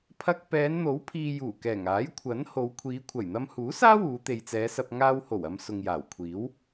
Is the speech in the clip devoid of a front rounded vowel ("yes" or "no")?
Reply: yes